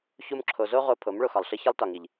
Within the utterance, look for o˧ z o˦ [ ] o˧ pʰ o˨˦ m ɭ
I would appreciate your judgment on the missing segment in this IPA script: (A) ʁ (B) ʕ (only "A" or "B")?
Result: A